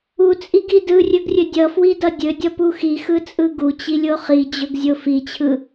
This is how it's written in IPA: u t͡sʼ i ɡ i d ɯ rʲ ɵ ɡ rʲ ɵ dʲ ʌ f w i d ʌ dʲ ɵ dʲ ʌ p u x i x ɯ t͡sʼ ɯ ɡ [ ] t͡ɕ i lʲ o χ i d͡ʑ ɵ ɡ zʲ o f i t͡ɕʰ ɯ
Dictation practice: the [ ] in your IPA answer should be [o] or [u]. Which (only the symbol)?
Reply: u